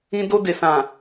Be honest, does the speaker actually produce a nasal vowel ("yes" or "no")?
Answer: yes